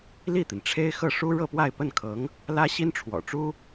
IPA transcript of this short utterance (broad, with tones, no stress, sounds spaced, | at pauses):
l i˥˩ t̪ i˩ n ʈ͡ʂʰ e˥ ɪ̯ x ɤ˥˩ ʂ u˥ ɻ ɤ˥˧ p w a˥˧ ɪ̯ p ə˥˩ n kʰ ɤ˧˥ ŋ | l ä˥ ɕ i˥ n ʈ͡ʂʰ w ɔ̰˨˩ ʈ͡ʂ u˥